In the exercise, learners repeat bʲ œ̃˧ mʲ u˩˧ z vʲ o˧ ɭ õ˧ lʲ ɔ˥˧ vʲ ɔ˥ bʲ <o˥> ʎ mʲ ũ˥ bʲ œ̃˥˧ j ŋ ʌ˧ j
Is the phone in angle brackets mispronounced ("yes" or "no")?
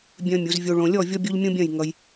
no